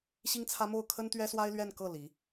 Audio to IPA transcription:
ɕ i˥ ŋ t͡sʰ ä˥ m o˥˩ ʊ̯ kʰ ə˥ n t̪ ɥ ɛ˥ s w a˥ ɪ̯ l ɥ ɛ˥˧ n k ɤ˥˩ l i˧˥

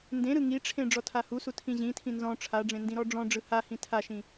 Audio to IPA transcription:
n d ẽ ɾ ɯ ŋ i ʈ͡ʂʰ ẽ ɖ͡ʐ ɔ tʰ a h u s u tʰ ĩ ʑ ĩ tʰ ĩ n z ɔ̃ ʈ͡ʂʰ a ɖ͡ʐ ẽ n d ĩ ɾ ɔ ɖ͡ʐ ɔ̃ ɖ͡ʐ ɯ h a h ĩ tʰ a ʃ ĩ

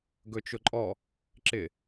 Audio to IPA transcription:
ɡ ɵ t͡ʃ ʊ ǃʼ ɔ | ǁ ɪ

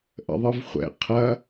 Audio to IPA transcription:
ʔ ə̰ ðˤ ɯ v χʷ ɛ̰ qʰ ɐ

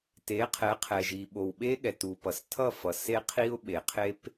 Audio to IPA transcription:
t e˨˦ qʰ ɛ˨˦ qʰ ɛ˨ ʒ i˨ ɓ o˨ w ɓ e˦ ɠ ɛ˨ t u˨ p ʌ˨ s tʰ ʌ˦˨ f ʌ˨ s e˦ qʰ i˦ ʊ̯ ɓ e˨ qʰ e˦ p

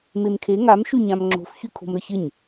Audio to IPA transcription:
m e m kʰ e ŋ a m ʃ y ɲ ã m ŋ͡ǁ o̤ f ç y kʰ o̤ m ɾ ə ç ɪ ɲ

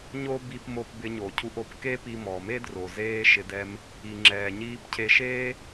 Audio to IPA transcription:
ɲ o˥ b i˧ p m o˧ p b ɪ˧ ɲ o˩ cʰ u˧ ʔ o˩ p k e˥ p i˧ m ɔ˩ m e˥ d r o˩ z eː˥ ʃ ɪ˧ d ɛ˧ m | i˩ ŋ͡ǁ ɛː˩ ɲ iː˧ p cʰ e˧ ʃ eː˥

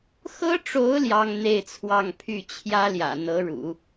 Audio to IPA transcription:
x ɤ˥ ʈ͡ʂ o˧˥ ʊ̯ l j ɑ˥ ŋ n̪ e˥˧ ɪ̯ t͡sʰ w ɑ˥˧ ŋ pʰ y˥˩ t͡ɕʰ j ä˥ l j ä̰˨˩ n̪ ɤ˧˥ ɻ ṵ˨˩˦

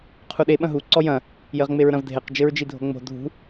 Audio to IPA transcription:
qʰ u ɗ e ɓ ɐ̃ ɦ u ǀ ɔ j ɐ̃ | j ɘ ʁ ŋ͡m e ɹ ɾ ɐ̃ v dʱ e q d͡ʒ ɘ ɹ d͡ʒ i dʱ o̤ ŋ͡m o̤ dʱ ṳ

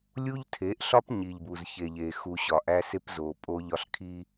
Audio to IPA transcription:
lʲ u˦ ʎ tʰ e˨˦ ʔ ɬ ɒ˦ p ɲ i˨ ʎ b u˨ z ç e˨ ʎ e˨ x u˨ ɕ ɒ˨ ʔ æ˦ s e˦ p z o˨ pʼ o˦ ʎ ɒ˦ ɬ kʰ i˦

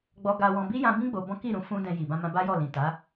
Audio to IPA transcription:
ɡ͡b ɔ˧ ɡ a˧ w ɔ̃˧ b i˦ j ã˧ b ĩ˦ ɡ͡b o˧ b ɔ̃˦ k i˦˨ ɾ ũ˧ f ũ˦ d ɛ̃˧ j i˨ b ã˧ m ã˧ b a˦ j ɔ˦˨ l ĩ˨ t a˨˦

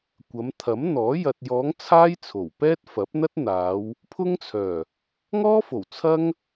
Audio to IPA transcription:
kʷ ɐ˨˧ m t̪ʰ ɐ˨˥ m n̪ ɔː˨˥ j ɐ˨ t̚ j ɔː˨˧ ŋ t͡sʰ aː˥ j t͡sʰ o˨˩ w p ɛː˥ t̚ f ɐ˨˥ p̚ n̪ ɐ˥ t̚ n̪ aː˨˧ w | pʰ ʊ˥ ŋ t͡sʰ œː˨˩ | ŋ ɔː˥ f o˨˩ w t͡sʰ ɐ˥ ŋ

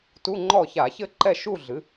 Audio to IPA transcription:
t u˧˥˧ ŋ͡ǃ ɔ˥˨ ç a˧˩˧ ç ɘ˥˨ ǃ ɛ˥˨ ʃ u˥˨ ɮ ɨ˩˥

